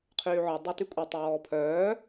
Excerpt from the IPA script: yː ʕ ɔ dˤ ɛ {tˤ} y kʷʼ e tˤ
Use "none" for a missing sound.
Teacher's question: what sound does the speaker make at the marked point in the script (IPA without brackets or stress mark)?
t